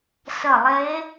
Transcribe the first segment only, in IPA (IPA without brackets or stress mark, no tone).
s